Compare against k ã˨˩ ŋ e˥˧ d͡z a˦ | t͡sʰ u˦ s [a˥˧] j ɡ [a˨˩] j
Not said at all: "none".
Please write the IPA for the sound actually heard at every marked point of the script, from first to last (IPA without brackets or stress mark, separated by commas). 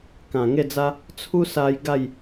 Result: a˧, a˥˧